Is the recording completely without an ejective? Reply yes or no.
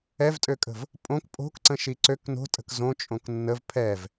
no